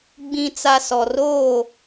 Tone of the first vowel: low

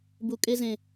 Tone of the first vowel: low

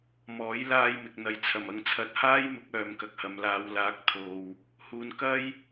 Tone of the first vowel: rising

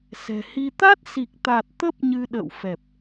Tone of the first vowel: low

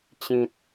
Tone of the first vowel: low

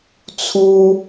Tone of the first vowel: high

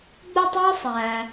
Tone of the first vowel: high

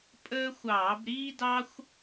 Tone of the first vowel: high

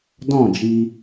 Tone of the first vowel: falling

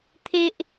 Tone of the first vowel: high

